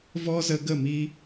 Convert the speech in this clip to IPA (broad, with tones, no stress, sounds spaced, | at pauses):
v ɔ˦ z ə˧ ɡ ə˦˨ m i˧